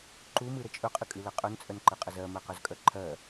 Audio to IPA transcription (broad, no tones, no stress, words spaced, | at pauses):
ǃumɨɾə t͡ʃʼɵqʼɨkʼɨlɜ qʼœnt͡sʼœnǃɨqʼə zɜmɜqœzkʼœ ǃʰɜ